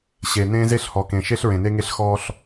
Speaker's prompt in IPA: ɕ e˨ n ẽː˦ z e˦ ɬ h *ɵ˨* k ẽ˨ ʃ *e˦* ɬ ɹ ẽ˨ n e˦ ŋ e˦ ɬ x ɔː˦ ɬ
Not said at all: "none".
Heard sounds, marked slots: ɔ˨, e˦

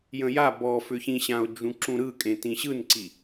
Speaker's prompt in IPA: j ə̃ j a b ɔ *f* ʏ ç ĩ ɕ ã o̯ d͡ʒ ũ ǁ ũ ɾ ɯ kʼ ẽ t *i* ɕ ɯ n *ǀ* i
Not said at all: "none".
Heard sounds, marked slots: f, ĩ, ǀ

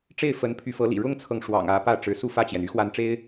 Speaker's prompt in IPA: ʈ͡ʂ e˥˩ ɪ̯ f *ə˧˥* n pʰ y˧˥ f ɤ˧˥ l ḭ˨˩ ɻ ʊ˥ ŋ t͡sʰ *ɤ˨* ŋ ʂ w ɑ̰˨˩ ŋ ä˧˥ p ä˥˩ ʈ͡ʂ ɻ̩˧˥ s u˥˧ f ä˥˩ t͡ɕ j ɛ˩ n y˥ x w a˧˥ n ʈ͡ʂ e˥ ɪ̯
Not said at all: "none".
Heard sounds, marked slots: ə˧˥, ɤ˨

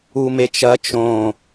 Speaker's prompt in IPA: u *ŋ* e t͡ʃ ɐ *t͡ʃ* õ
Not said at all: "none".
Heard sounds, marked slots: m, t͡ʃ

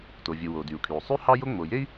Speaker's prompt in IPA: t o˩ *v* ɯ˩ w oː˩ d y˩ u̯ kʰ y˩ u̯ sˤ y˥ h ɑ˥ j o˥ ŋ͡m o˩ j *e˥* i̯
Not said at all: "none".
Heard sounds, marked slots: vʲ, e˥

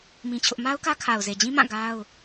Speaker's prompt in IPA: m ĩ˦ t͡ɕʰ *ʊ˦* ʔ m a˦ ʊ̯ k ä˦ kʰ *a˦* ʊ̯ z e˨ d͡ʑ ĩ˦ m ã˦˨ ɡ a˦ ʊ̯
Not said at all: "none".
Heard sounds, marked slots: ʊ˦, a˨

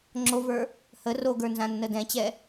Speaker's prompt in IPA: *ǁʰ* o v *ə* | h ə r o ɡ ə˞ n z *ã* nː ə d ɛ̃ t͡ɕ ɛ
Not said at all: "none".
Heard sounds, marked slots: ŋ͡ǁ, ə˞, ã

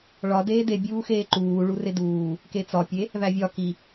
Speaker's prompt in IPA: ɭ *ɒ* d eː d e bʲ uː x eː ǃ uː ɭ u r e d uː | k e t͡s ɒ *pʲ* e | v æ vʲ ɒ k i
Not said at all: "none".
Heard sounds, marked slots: ɒ, pʲ

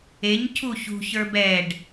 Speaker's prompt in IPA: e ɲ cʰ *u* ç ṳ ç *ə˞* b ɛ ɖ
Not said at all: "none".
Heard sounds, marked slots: u, ə˞

